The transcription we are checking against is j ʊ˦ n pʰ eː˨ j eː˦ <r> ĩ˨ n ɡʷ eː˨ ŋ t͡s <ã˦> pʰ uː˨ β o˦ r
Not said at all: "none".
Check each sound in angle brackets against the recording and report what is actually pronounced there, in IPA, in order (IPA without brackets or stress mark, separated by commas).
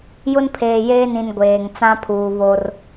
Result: n, ã˦